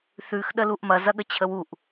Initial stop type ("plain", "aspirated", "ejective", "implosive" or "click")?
implosive